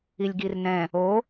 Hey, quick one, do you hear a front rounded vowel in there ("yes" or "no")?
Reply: no